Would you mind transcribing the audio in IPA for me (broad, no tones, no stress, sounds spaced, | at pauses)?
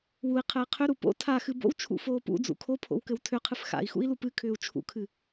w u i̯ qʰ ɘ i̯ qʰ ʏ ɾ u p o̰ tʰ a x ɨ b o̰ w t͡ʃʰ ṵ f oː p ṵ d͡z ṵ kʰ o pʰ o̰ w k ɘ w tʰ ʏ qʰ ɨ f x a̰ i̯ x ṵ i̯ l u p ɨ kʰ ʏː u̯ t͡ʃʰ ṵ kʰ ɨ